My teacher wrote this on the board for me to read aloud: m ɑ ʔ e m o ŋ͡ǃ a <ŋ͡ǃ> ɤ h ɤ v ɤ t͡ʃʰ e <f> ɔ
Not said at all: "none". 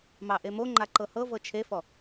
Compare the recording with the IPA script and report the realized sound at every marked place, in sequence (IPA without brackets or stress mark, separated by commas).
ǃ, f